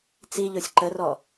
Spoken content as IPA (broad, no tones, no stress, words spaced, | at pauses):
t͡siʎosʲ ǃərɔ